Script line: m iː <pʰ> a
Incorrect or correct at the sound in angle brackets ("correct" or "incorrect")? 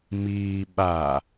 incorrect